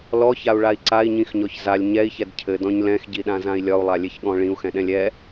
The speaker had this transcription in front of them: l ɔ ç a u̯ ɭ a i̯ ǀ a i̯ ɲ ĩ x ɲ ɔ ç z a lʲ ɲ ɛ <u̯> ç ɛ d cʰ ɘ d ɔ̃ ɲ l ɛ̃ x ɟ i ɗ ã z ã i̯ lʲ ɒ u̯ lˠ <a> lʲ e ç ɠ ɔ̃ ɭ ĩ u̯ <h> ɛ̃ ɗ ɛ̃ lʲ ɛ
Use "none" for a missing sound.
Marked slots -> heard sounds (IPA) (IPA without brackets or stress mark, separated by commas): i̯, a, x